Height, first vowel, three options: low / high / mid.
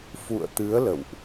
high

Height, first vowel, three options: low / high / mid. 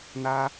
low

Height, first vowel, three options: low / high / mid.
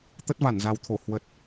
mid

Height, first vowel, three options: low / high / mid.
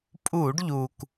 high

